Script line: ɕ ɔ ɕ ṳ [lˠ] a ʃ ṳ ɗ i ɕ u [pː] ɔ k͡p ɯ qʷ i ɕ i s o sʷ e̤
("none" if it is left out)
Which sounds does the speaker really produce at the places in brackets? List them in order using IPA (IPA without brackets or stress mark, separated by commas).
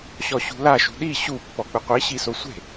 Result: l, pː